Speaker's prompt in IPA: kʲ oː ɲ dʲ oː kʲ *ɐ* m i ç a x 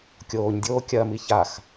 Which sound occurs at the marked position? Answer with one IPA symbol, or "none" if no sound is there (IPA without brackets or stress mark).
ɐ